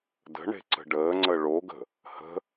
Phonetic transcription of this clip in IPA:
d ə̤ ɳ e̤ ǀ ə̤ ɖ əː ŋ͡ǀ ə ɭ o ɡ ə̤ | h ə̤

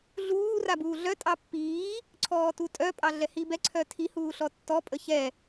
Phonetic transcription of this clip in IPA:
ɮ uː r a b uː ɮ œ tʼ ɑ pː iː | ǀʰ ɔː t u tʼ œ pʼ ɑ ɮ ɛ h i b ɛ ǀʰ œ tʰ i h uː ɬ ɔ tː ɔ pʼ ə ç ɛ

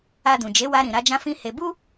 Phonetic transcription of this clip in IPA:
a˧ d ũ˨ d͡ʒ e˨˦ w a˧ ɾ ĩ˨ ɾ a˧ d͡ʒ ã˦ f ĩ˦ h e˧ b u˦

